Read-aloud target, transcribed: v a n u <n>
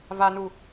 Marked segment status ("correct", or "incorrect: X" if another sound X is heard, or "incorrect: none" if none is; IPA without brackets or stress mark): incorrect: none